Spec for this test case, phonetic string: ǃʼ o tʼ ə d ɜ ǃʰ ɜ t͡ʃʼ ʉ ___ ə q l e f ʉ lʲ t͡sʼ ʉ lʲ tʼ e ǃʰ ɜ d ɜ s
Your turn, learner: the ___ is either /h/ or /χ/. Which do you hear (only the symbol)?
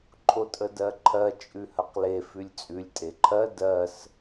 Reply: h